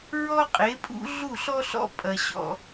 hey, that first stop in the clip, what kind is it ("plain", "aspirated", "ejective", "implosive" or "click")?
ejective